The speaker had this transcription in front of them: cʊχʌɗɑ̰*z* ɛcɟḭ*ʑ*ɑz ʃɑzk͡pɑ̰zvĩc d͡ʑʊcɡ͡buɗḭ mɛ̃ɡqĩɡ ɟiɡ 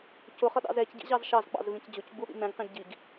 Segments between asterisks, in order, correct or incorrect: correct, correct

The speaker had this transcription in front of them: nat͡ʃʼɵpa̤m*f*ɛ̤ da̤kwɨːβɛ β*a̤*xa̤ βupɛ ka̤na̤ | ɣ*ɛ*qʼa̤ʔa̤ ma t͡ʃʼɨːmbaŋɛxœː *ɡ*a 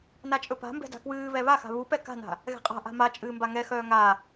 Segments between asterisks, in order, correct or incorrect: incorrect, incorrect, incorrect, incorrect

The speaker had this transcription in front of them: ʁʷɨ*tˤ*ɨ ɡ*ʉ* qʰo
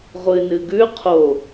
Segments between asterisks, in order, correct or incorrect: incorrect, correct

